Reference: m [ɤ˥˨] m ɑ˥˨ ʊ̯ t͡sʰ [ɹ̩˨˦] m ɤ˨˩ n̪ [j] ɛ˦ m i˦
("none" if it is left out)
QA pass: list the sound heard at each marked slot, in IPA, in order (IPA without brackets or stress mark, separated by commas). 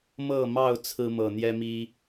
ɤ˥˨, ɹ̩˦, j